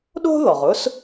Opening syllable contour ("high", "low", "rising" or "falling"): high